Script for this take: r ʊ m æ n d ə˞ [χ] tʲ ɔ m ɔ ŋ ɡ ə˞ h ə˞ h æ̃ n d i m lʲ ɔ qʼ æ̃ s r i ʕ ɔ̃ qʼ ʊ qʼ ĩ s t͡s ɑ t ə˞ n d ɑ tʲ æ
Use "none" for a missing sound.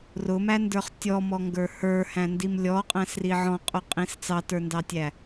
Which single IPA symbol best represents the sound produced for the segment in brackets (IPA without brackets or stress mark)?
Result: χ